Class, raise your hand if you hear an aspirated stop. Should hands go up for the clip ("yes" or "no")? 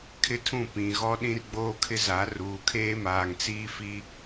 yes